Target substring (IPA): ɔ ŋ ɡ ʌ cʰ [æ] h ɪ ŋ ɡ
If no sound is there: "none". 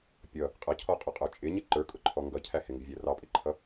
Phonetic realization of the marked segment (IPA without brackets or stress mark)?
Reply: æ